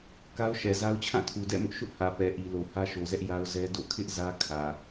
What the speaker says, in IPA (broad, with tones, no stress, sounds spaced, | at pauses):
k a˦ ʊ̯ ʃ ɛ˨ z a˦ ʊ̯ t͡ɕʰ ã˦˨ tʰ u˨ d ɛ̰˦˨ m ʊ˦ ʔ ʃ ʊ˦ ʔ h ä˨ p ɛ˨ ʔ i˨ l o˨ h ä˦ ʃ o˨ z ɛ˦ ʔ j a˦ ʊ̯ z ɛ˦ d o̰˦˨ kʰ ɪ˦ ʔ z ä˦ kʰ ä˨